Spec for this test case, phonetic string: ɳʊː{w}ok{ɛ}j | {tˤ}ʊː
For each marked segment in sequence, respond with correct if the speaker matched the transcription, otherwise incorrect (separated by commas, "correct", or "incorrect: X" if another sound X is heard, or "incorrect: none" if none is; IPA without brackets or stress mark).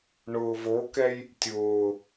incorrect: v, correct, incorrect: tʲ